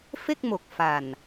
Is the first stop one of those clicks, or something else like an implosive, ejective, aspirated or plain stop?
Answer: plain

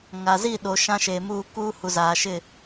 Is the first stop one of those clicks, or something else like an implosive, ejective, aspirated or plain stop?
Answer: implosive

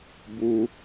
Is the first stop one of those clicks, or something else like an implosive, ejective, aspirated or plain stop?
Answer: plain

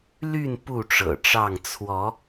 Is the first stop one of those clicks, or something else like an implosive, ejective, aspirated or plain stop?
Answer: plain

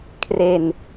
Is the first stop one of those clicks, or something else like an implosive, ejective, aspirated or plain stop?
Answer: aspirated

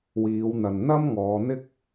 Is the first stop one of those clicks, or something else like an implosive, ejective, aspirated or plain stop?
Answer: plain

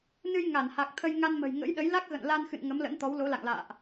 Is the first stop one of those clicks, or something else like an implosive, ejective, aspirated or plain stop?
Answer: plain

